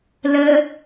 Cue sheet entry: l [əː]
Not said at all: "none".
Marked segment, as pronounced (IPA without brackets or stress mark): əː